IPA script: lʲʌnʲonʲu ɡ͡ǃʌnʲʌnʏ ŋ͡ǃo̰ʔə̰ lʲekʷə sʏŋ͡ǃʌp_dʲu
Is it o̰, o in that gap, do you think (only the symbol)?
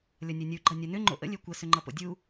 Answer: o̰